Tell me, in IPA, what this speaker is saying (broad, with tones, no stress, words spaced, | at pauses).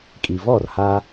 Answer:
kʼi˩vɔ˥˩rha˧